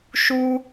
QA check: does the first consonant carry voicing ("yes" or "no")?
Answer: no